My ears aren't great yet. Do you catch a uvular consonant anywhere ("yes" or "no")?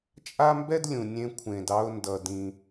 no